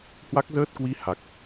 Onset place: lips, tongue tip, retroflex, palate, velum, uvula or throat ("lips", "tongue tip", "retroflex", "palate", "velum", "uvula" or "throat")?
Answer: throat